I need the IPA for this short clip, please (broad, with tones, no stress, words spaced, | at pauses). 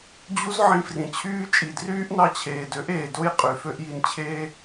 d͡ʑu˦zʕĩ˧frĩ˨ t͡ɕʰyː˧ t͡ʃʼi˨dryː˦ʔnɑ˧ t͡ɕʰeː˨dø˨˦ʔeː˨ do˦j qʼy˨ fø˧ʔji˨nt͡ɕʰeː˧